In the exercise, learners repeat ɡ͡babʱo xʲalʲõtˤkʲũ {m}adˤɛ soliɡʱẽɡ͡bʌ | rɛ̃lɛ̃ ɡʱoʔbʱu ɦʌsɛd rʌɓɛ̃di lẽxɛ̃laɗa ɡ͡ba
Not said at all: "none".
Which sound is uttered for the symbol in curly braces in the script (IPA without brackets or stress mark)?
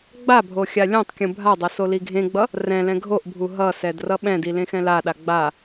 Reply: bʱ